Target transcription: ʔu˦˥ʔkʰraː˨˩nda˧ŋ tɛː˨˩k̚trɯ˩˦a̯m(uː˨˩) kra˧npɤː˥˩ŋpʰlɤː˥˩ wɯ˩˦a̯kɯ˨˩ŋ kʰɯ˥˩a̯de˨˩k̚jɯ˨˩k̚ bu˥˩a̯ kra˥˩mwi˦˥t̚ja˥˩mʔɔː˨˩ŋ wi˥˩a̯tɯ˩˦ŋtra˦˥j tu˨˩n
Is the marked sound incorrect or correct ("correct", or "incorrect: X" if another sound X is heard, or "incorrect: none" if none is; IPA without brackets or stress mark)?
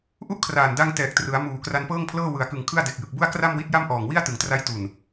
correct